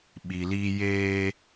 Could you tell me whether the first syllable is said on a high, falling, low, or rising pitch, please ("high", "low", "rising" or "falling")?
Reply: low